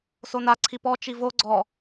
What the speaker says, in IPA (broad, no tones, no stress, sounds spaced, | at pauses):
s o n a ǀʰ i p ɔ t͡ʃ i v o ɡ͡ǀ ɔ